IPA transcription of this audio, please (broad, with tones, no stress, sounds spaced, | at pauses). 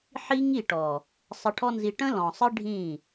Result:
ħ i˦ ŋ i˦˨ ʈ ɔ˨ | sˤ ə˧ ʈʰ ɔ˦ n z i˧ ʈ ə̃˦ l ɔ̃˨ sˤ ɨ˦ ɖʱ ĩ˦˨